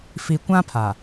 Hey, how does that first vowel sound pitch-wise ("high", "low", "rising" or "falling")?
low